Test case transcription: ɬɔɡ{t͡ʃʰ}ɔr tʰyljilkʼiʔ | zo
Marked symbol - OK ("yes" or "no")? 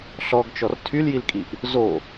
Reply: no